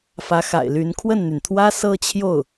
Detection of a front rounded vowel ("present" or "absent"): present